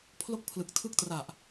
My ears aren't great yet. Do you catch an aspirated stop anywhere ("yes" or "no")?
yes